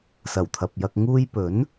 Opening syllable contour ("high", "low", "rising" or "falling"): low